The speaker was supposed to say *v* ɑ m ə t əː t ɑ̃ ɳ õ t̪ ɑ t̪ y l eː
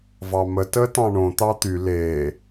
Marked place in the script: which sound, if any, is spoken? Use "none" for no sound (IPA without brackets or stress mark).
v